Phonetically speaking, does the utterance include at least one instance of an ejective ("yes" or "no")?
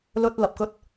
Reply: no